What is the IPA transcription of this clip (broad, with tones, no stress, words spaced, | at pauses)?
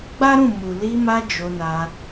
ɡ͡ba˦ɾũ˦˨ mu˨ li˧ma˧ d͡ʒo˧na˧